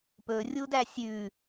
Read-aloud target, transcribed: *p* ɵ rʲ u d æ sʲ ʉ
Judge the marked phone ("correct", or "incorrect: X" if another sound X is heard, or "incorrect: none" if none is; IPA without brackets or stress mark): correct